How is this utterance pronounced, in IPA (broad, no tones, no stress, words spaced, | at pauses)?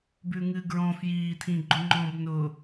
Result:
bʉŋɨ ɡɹɔ̃ fjiːtʰĩɡ͡ǃʊ ŋ͡ǃɔ̃b nʊ